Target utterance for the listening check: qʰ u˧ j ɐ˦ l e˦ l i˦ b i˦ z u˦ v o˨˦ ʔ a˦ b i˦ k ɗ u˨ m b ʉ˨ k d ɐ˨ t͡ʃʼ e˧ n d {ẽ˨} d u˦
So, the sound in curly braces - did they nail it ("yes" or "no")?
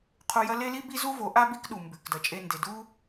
no